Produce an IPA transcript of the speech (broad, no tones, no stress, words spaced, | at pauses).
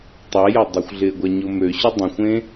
tˤɛjɐ dˤɛxʷɮɪːɡʷaɲʊ møɕʊ dˤə̃xʷẽ